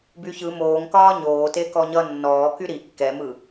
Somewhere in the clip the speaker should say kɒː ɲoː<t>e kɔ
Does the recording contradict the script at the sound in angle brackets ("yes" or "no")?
no